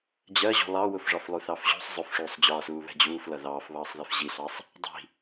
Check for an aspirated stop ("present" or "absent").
absent